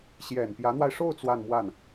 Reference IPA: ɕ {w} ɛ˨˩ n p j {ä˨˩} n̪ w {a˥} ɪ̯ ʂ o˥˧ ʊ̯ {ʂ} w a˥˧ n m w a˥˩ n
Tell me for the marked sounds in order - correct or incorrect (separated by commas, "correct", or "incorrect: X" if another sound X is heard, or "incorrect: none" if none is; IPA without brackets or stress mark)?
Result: incorrect: j, incorrect: ä˧˥, incorrect: a˧, incorrect: t͡s